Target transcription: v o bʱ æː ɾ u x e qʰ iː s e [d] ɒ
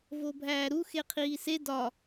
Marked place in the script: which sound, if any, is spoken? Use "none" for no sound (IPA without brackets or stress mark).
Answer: d